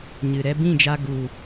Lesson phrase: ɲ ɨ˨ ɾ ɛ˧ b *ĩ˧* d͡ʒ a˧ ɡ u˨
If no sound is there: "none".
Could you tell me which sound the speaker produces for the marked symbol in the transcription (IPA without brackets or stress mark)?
ĩ˦˨